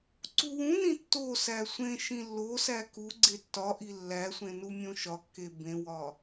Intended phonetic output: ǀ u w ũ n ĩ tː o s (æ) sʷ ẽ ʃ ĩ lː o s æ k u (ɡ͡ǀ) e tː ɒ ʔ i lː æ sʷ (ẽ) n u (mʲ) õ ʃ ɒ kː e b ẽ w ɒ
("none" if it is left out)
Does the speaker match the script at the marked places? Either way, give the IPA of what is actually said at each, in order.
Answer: æ, ɡ͡ǀ, ẽ, mʲ

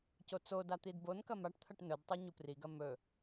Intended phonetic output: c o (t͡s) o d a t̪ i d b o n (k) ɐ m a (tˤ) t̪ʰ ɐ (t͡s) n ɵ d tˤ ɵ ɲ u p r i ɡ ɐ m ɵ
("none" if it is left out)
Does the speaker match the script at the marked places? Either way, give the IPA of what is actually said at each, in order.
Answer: t͡s, k, ʈ, ʈ

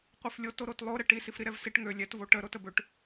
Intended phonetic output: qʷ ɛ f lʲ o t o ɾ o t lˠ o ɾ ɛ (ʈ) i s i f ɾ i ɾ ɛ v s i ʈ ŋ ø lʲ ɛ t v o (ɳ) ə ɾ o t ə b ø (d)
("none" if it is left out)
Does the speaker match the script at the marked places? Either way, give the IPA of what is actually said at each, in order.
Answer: ʈ, ʈ, ʈ

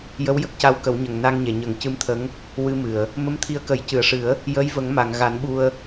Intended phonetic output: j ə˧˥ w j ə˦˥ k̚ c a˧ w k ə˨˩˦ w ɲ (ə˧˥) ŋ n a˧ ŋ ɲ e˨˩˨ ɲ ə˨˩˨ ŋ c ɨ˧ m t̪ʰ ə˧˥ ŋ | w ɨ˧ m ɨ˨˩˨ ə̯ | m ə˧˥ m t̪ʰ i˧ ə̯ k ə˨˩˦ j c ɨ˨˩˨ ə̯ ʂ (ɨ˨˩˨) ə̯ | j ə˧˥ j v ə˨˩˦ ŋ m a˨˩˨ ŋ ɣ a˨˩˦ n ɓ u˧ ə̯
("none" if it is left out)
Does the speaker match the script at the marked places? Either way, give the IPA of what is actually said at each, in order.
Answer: ə˨˩, ɨ˨˩˦

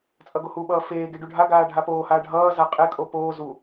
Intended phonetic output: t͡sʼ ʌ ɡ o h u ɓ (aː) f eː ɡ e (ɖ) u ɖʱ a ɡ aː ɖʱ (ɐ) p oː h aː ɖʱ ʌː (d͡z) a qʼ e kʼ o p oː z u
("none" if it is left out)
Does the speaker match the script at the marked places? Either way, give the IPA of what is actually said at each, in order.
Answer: ʌː, ɖ, a, z

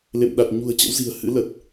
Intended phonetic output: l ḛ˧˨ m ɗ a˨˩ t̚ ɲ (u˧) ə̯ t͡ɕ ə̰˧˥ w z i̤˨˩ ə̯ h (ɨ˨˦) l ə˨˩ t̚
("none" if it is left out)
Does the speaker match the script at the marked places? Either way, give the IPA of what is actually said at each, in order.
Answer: ṳ˨˩, ɨ̰˧˥

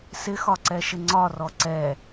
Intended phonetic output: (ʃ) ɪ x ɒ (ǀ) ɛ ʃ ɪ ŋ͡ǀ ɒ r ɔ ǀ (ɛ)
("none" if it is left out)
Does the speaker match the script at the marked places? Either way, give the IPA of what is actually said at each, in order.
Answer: s, ǀ, ɛ

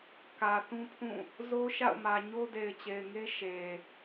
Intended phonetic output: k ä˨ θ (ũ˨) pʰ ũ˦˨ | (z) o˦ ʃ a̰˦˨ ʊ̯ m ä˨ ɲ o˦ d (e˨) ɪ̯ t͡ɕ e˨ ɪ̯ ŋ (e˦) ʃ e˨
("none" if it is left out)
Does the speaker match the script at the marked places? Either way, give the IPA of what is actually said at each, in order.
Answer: ũ˦, z, e˨, e˦

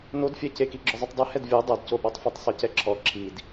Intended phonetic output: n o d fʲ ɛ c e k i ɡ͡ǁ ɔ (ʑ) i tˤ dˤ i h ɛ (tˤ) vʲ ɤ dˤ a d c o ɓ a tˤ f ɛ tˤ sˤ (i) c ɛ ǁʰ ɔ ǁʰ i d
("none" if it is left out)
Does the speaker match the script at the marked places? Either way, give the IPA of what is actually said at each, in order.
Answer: zˤ, d, i

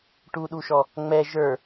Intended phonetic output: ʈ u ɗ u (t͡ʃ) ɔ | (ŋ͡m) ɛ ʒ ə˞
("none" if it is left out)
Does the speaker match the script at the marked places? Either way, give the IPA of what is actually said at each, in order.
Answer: ʃ, ŋ͡m

